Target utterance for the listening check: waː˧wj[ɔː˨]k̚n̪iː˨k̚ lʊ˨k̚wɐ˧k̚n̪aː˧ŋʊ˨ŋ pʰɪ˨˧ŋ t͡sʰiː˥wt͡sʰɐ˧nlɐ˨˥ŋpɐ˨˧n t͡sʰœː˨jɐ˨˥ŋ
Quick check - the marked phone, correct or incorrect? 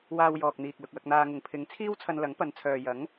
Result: correct